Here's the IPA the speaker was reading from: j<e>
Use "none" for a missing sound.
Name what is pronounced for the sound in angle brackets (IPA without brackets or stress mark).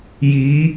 i